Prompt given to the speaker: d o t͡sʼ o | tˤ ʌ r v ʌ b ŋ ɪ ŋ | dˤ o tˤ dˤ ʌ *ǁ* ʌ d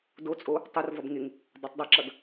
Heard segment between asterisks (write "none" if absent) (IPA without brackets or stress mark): ǁ